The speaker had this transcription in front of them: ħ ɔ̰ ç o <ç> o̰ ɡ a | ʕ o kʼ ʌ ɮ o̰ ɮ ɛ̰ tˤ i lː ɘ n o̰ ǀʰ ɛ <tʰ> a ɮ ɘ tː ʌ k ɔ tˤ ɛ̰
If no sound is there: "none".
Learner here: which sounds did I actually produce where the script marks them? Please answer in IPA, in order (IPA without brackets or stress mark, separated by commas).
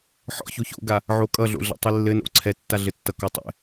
ç, tː